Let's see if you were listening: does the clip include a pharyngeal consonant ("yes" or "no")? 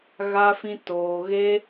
no